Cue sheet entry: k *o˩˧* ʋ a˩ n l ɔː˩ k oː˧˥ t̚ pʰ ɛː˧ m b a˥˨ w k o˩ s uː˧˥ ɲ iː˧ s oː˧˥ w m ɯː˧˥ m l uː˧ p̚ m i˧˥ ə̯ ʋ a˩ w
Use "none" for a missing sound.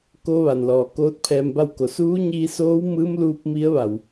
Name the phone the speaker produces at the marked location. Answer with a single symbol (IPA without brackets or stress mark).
o˧